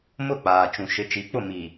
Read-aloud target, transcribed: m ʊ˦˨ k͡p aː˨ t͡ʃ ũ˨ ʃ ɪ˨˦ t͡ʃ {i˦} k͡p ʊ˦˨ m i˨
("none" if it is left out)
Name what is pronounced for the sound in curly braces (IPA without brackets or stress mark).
i˨˦